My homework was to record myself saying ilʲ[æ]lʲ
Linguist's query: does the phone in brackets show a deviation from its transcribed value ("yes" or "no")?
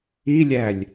no